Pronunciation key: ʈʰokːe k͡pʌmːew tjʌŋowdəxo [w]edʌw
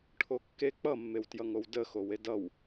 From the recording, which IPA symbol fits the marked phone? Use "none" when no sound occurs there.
w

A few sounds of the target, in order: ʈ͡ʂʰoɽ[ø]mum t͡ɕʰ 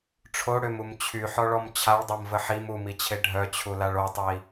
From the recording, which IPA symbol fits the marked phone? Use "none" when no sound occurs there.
ø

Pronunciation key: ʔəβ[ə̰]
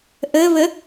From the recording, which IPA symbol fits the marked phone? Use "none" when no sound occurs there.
ə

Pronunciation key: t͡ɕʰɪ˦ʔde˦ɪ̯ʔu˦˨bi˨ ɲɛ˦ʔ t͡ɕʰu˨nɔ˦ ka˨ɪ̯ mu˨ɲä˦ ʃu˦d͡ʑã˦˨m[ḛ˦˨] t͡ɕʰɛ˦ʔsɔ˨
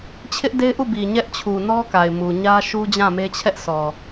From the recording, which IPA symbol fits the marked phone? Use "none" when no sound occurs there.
e˦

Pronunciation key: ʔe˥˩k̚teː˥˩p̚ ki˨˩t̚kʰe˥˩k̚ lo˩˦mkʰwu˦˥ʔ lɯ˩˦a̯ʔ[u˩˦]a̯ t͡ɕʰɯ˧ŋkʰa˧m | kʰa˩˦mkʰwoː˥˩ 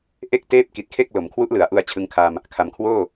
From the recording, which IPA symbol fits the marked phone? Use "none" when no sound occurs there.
u˧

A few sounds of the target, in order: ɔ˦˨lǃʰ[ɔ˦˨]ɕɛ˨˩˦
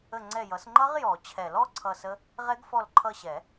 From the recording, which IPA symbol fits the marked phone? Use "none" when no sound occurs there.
ʌ˦˨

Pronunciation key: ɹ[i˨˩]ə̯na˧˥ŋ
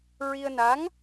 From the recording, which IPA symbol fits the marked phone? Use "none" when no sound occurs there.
i˧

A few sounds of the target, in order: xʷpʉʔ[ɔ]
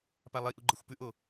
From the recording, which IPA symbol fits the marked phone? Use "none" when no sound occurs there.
o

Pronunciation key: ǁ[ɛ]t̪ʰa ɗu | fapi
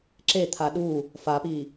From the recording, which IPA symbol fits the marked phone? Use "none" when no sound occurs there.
e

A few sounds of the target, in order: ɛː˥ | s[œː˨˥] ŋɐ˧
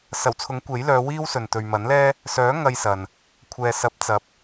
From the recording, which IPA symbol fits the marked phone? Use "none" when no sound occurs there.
œː˨˥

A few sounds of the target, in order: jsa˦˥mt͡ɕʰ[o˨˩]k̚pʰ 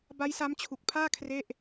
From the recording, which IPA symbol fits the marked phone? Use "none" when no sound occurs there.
u˨˩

